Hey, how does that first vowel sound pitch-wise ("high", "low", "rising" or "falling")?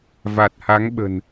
low